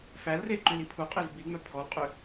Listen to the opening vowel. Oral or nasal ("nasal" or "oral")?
oral